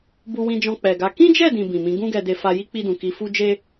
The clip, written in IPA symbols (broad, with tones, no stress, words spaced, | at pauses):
bu˧wĩ˧d͡ʒɔ̃˧ k͡pɛ˨ɡa˨˦ kĩ˦d͡ʒɛ˦˨dĩ˨ bĩ˨mĩ˨˦ ɡũ˦ɡɛ˧de˧fa˧ ji˦k͡pi˧dũ˨ ki˧fu˦ d͡ʒe˦